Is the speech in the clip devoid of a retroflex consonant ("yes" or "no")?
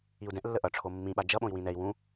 no